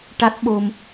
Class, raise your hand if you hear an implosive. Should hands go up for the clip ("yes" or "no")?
yes